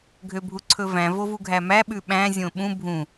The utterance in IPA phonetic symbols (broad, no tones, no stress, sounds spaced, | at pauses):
ɡʱ ø bʱ u ǀʰ ɵ v æ̃ v o v u ɡʱ æ m æ ɓ ʉ ɓ æ̃ zʲ õ ɓ ũ bʱ ũ